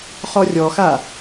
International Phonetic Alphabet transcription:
χɔrʲɔxa

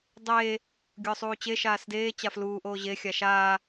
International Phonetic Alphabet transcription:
dˤeː | ɡʲʊːsˤuːt͡ɕe ʃaːsdeː t͡ɕafluː ʔoːʑe xʲaʃaː

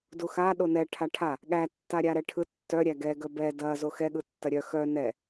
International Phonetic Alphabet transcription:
duxa ɗonɛ ʈʰaʈʰa | ɠæ tːaɾʲaɾɛʈʰɯ tːœ ɾʲæɡɛ ɡœbɛ dɐ zoxɛ ɠɯtːɐɾʲœ xœ nɛ

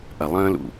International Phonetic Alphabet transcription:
ʔɐ˨lˠə̃ː˦lṵ˨

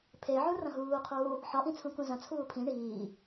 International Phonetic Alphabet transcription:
pʰeʕũ rɐ̃ɦuːqʰuː | ħɒʔĩ t͡sʰũkũzɐ̃t͡sʰuː pʰĩ ɳiː

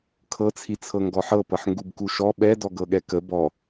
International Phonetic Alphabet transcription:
kʰɤt͡sʰit͡sʰɤ ŋɡɔħɤpɤħ ŋɡubkuʃɔ ɓɛdɔ ɡɤɠɛkə bɔ

